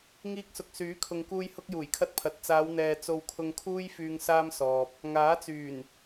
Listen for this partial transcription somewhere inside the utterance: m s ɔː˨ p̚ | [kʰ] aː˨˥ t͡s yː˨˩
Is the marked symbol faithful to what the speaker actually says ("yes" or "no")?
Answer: no